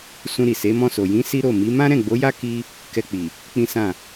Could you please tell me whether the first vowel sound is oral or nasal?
nasal